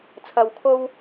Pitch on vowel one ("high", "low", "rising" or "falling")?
low